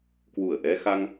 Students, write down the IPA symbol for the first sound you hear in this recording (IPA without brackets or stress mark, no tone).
k